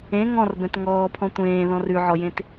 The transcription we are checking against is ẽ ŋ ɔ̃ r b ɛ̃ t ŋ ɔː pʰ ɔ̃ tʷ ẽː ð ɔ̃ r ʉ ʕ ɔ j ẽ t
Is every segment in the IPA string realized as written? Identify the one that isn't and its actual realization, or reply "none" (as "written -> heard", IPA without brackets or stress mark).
none